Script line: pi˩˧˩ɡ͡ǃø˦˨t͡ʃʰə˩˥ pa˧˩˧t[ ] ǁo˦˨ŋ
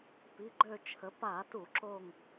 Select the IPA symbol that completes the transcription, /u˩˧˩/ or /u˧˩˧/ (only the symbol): u˧˩˧